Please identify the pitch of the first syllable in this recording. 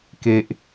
low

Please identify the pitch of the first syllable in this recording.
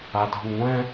low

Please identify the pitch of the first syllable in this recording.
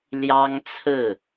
high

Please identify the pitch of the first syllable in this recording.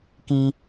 high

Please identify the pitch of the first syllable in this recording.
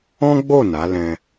high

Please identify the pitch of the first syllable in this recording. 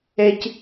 low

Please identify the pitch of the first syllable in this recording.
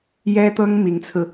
high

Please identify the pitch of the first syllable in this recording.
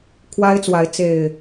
high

